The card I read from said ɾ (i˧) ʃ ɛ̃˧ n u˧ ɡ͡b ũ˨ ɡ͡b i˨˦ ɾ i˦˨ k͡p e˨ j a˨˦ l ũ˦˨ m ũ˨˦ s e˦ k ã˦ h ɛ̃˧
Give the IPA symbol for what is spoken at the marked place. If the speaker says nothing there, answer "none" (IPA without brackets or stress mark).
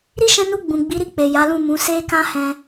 i˦